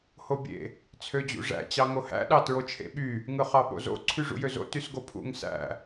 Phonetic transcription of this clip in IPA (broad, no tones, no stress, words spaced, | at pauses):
hobʲḛ | t͡sʰød͡ʑṵʐæ̰ t͡ɕɑŋohæ̰ ɗɑtɹot͡ʃʰḛɓy | ŋɯχɑɓo̰zo̰ ǀʰyʐṵjøzo̰ tysɡopʰṵŋ sæ̰